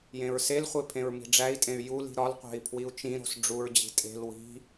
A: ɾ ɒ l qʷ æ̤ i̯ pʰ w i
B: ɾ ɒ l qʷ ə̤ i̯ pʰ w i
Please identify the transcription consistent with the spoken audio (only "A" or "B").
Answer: A